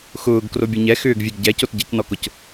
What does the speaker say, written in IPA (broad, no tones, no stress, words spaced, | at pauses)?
xʊːɡ krobʲɐɲɛ xʏːɡvʲeɡ ɟɛcot ɟɐcnɔkʊc